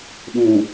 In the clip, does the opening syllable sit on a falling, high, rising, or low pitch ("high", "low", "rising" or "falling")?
low